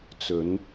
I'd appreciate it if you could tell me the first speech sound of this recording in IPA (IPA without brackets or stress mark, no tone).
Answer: t͡s